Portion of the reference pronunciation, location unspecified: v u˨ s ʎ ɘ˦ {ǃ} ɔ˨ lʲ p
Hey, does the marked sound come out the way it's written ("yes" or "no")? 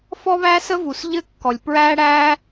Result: no